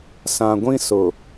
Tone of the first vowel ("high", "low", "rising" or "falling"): low